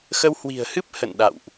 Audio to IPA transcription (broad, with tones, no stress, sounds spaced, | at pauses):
x ə˧ w h w i̤˨˩ ə̯ h ɨ˦˥ p̚ h ə̰˧˨ n ɗ a̰˧˨ w ʔ